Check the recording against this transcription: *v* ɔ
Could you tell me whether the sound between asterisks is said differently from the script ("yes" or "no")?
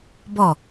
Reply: yes